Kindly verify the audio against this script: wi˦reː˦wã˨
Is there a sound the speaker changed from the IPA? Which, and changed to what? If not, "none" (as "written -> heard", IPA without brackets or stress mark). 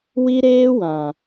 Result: r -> ɾ